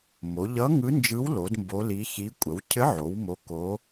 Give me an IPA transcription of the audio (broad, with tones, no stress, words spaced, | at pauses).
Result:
mo˩˧ʎʌ˧˥ ŋɯ˧˥nd͡ʒɯ˧˥wlo˩˧d mbo˧˥li˧˥ çi˧˥ kʷʼə˩˧wcʰɘ˧˥ʕo˩˧w mo˧˥ko˧˥